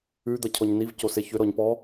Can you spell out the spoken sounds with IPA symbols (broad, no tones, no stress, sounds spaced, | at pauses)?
ʉ d̪ ʌ cʰ ɔ ɲ n i v c o s e ç ʏ ɾ ɔ ɲ p ɔ